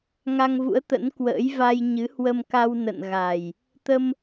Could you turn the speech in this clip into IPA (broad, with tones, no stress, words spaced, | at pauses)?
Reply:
ŋa˧ŋvṵ˧˥ə̯t̪ə̰˧˥nkwə̰ː˧˥j va˧jɲɨ˨˦ hwə˧mka˧w nə̰˧˨nɣa˨˩j | t̪ə˧m